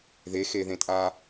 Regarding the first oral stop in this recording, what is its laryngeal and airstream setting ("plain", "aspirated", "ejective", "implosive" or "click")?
ejective